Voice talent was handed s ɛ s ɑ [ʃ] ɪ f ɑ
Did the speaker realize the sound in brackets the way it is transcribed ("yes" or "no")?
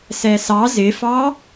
no